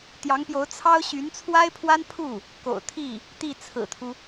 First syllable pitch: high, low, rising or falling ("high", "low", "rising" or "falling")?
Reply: rising